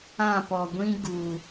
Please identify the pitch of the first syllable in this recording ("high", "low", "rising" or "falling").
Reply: falling